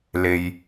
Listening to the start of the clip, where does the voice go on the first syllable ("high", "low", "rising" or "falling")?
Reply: low